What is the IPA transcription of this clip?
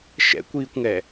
ʃ ɛ̰ kʷ iː kʷ ŋ ɛ

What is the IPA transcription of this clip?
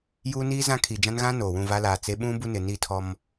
j uː˦ n iː˦ z ã˦ kʰ i˨ d͡ʒ ã˦ n ɣ ã˦ n oː˨ w ũ˦˨ v a˦ l aː˨ t͡s e˦ ɓ ũ˦ b u˦ n ɪ˨ n i˦˨ tʰ ɔ˦ m

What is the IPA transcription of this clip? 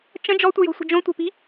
t͡ʃ ə̃ d͡ʒ ɔ tʷ ə j o̤ sʷ ə̤ d͡ʒ õ tʷ ə̤ p i̤

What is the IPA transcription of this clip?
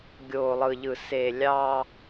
ɡʲ oː˨ lˠ ɯ˨ ʎ ɯ˨ s e˨ lʲ ɑ˦

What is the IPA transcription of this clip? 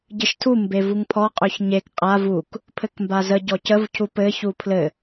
ɟ ɘ ʃ tʰ u m b e v u ŋ pʰ ɔ qʼ ø ç ɲ e k qʼ a v u k | pʰ ɘ k m b a z ə ɟ ɔ c ə v cʰ u p ɘ ç u pʰ l ɘ

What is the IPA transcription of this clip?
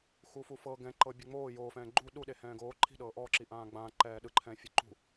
x u f u f ɤ ɡ ɛ̃ ǃ ɤ bʲ ɯ ŋ͡m oː j oː f ɛ̃ː ɡ͡ǃ u ɗ u ɗ e h ɛ̃ː ɡ oː ǃʰ i̤ ɗ ɤː ʔ ɔː ǁ i ʔ ãː ɡ͡b ãː ǃ ɛː ɗ ɯ ǃʰ ɛ̃ː fʲ ɯ ǃ ṳ

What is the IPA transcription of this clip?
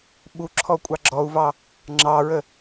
ɓ u ǁʰ ɔ kʷʼ ɑ ɡ͡ǁ ɔ u̯ v ɑ | ŋ͡ǁ ɑ ɹ ə

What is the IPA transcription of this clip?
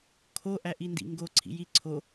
kʰ o ʔ æ ʔ i n d ḭ ŋ ɡ o ǀʰ ḭ j i ǀʰ o

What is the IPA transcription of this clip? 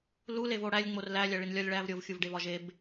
l u l e v o ɽ æ lʲ ŋ͡m o r l æ lʲ æ ɭ i n lʲ ɒ lʲ ɭ æ v ɾʲ o v xʲ u v ɖ e v ɒ ʒ e b

